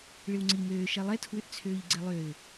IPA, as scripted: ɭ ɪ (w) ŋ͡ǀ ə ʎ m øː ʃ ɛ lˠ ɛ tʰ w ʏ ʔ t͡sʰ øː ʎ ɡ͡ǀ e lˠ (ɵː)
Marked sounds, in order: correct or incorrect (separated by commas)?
correct, incorrect